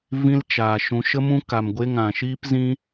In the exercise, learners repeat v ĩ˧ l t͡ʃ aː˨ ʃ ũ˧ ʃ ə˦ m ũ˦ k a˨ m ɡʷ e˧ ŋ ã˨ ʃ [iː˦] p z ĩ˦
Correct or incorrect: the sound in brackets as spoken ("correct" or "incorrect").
correct